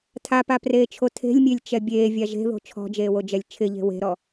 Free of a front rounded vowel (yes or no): yes